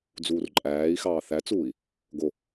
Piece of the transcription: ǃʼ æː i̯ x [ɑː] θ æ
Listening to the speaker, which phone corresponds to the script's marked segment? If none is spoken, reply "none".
ɑː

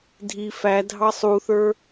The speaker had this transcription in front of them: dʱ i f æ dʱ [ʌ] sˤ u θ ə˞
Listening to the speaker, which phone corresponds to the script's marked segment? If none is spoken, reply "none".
ɑ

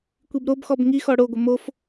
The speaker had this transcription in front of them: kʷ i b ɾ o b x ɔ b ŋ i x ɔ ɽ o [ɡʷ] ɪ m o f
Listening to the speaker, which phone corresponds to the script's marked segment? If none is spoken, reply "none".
ɡʷ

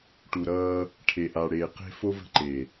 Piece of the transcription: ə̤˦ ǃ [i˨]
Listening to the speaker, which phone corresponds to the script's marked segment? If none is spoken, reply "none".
e˨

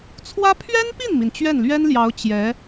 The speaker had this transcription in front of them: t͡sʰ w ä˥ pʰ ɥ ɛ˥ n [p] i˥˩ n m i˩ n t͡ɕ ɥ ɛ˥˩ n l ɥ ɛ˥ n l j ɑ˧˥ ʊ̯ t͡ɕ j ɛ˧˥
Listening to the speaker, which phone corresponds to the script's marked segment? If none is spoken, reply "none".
p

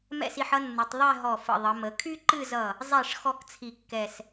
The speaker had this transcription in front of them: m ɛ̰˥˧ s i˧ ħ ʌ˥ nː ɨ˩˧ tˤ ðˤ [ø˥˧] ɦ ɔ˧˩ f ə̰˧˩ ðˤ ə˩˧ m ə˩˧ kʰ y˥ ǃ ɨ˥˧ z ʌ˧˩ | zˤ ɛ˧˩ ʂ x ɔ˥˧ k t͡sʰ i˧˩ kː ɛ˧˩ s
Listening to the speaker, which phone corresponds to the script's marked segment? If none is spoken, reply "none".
ɛ˥˧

